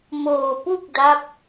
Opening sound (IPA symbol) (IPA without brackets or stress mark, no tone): m